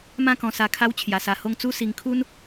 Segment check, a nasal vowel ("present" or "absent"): present